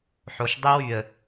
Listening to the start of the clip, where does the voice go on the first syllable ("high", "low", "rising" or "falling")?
low